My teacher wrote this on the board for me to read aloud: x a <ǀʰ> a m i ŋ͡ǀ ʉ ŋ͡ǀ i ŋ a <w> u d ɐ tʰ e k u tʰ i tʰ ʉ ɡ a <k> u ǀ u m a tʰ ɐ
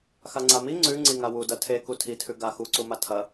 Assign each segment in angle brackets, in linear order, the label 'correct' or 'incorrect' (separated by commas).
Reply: incorrect, correct, incorrect